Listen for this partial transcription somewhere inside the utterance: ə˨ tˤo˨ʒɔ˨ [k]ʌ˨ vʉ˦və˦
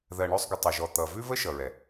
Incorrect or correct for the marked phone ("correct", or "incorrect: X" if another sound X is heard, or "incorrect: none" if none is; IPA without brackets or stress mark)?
incorrect: t̪